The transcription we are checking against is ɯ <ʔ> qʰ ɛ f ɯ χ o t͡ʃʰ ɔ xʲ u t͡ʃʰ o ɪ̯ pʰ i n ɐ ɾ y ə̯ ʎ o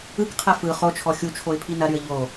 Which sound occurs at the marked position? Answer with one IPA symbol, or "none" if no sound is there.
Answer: k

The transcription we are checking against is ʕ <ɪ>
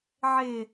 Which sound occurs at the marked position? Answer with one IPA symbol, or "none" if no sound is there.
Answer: ɪ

